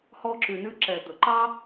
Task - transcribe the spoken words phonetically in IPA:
h ɔ˧ ǁ ʉ˨ n ʉ˧ ǁ ɛ˨ d̪ ɵ˨ ǃ ɑ˦

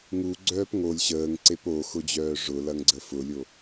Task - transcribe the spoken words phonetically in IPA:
ŋ u ɡ͡ǀ œː p ŋ o lʲ ɕ əː ŋ ǀ e p o x ʊ d͡ʑ œː ʐ ʊ l ɐ ŋ ɡ͡ǀ ə f ʊ lʲ o

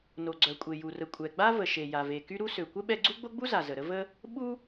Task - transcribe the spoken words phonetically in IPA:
n o˩ ɡ͡ǀ œ˩ kʷʼ e˩ j u˩ r ə˩ kʷʼ ɛ˩ ɡ͡b a˥ v ə˩ ʃ e˩ j a˩ v e˩ k y˥ ɾ u˥ s ø˩ kʷ ə˥ ɓ ɛ˥ ɡ͡ǀ u˥ ɡ͡b o˥ ɡ͡b u˥ z a˩ z ə˩ ɾ ə˥ v ə˥ | ɓ u˥

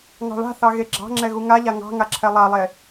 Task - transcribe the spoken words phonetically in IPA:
ŋ ɑ̤ ɭ a̤ θ ɑ ɣ e ɡ͡ǁ ɑ̤ ŋ͡ǁ ɛ ɣ u ŋ a ʎ a ŋ ɑ̤ ŋ a ǁʰ ɛ lˠ a lˠ e

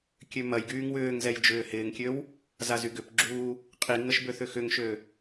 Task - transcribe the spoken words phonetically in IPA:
kʲ ø m ɐ j ɡ yː ŋ w ʏː ŋ z ɛ j d͡ʒ ʏː h ɪː ŋ kʲ ø w | z a z y ɡ ʏ p ɡ͡ǁ uː | qʼ i ŋ ə ʃ b ø θ ʏ x ʏ ŋ ʃ ø

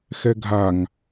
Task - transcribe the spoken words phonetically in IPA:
x ɛ ɡʱ a ŋ

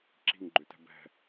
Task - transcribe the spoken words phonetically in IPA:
ǁ i̤ ŋ ɡ͡ǃ ʏ t ɛ̤ b ɛ̤

